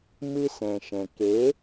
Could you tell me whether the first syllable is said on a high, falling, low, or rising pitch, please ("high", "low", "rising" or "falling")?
high